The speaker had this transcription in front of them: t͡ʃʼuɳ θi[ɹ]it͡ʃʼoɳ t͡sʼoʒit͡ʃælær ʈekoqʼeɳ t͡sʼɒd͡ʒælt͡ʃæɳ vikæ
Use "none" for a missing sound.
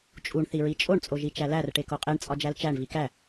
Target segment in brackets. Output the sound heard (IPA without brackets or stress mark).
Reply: ɹ